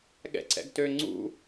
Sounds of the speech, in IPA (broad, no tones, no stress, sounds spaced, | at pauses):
ɠ ɛ̰ ǀ ɛ̰ ɡ t ø ŋ͡ǀ ṵ